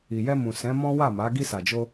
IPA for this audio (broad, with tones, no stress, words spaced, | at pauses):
i˨jɛ˧mũ˨ sɛ̃˨˦ mɔ̃˦wa˦˨ma˨˦ ɡi˧sa˨d͡ʒo˧